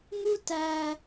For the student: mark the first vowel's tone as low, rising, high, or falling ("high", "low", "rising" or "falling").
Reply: high